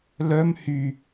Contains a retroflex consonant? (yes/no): no